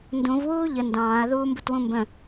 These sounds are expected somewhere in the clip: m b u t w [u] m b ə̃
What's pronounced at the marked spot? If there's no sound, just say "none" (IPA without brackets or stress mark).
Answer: ũ